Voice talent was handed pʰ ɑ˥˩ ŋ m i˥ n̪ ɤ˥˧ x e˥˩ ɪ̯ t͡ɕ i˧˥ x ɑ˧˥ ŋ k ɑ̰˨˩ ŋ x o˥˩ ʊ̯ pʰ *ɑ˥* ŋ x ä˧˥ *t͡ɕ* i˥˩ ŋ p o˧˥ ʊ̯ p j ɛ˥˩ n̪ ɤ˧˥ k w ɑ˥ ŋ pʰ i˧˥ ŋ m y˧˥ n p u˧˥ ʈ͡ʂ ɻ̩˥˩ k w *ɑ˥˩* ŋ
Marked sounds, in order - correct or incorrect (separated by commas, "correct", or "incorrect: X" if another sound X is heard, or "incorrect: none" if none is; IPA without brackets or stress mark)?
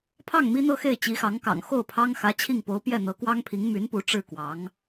correct, incorrect: t͡ɕʰ, incorrect: ɑ˧˥